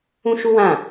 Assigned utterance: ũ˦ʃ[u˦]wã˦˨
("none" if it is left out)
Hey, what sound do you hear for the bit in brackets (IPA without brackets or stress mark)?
u˦